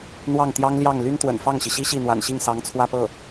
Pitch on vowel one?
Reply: falling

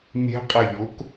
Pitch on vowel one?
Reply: rising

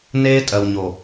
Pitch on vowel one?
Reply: high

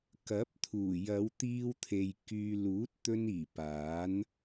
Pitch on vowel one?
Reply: rising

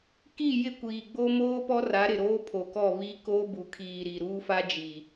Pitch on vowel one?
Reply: falling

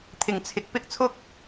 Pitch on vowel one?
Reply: low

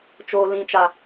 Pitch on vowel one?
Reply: low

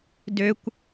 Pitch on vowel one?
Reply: high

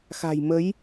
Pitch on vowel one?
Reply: low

